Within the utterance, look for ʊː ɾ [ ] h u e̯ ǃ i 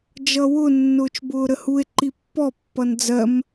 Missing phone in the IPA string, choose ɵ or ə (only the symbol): ə